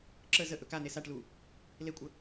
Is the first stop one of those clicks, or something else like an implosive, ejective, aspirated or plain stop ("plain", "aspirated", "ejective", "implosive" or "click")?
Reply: click